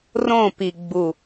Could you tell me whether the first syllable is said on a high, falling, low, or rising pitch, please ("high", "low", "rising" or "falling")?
falling